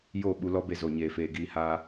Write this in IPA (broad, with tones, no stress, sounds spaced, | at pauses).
j o˦˨ ɓ u˧ l ɔ˦ b e˧ z o˨ ɲ eː˨ f eː˨ ɡ iː˧ h aː˧